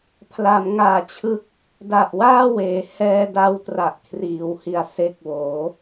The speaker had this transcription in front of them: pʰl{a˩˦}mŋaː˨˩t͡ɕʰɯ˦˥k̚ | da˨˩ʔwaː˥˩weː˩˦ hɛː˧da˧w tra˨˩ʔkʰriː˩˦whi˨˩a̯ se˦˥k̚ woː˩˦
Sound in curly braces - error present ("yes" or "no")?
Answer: no